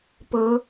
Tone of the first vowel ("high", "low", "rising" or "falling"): rising